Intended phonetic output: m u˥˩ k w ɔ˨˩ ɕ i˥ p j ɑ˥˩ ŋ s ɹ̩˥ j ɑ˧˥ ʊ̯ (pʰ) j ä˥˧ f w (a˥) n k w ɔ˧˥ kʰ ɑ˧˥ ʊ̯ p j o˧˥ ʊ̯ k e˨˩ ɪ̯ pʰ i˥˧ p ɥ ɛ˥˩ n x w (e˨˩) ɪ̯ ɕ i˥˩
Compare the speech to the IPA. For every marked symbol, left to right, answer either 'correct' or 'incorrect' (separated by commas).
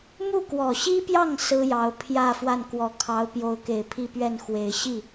correct, incorrect, correct